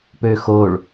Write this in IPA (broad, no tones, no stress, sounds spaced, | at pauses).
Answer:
p ø x o ɭ